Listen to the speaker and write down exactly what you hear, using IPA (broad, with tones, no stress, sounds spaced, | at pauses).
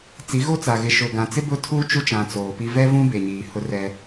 t͡s i˨˦ ɣ o˦ t͡s a˨ ɣ ɪ˨ ʃ ʊ˨ ɡ ã˨ t͡s ɪ˦ b ʊ˦ tʰ uː˦ t͡ʃ u˦ t͡ʃ ã˨ t͡s oː˨ p i˦ v ɛ˦ v ũ˦ b e˨ ɲ iː˨ h ʊ˦ r ɛ˦